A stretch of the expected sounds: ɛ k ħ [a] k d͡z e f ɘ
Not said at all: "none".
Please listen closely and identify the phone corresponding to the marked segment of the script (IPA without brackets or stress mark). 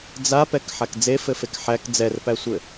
a